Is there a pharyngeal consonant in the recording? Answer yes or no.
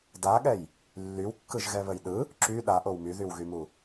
no